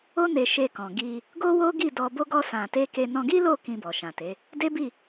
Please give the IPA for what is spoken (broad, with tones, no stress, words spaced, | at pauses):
o˦ne˧ʃe˧ kɔ̃˨ɡi˧ | ɡo˦wo˦ɡi˦˨ dɔ˧bo˦ɡɔ˦ sã˧ te˦ke˦ nɔ̃˧ɡi˦lo˦˨ kĩ˧bɔ˨ʃã˨te˨˦ | de˦bi˦˨